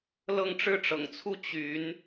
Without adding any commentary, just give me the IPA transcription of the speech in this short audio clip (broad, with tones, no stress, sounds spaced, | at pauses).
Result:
l ɤ˥˧ ŋ ʈ͡ʂ ɻ̩˥˩ ʈ͡ʂ ɤ̰˨˩ ŋ t͡sʰ u˥˩ t͡ɕ y˧˥ n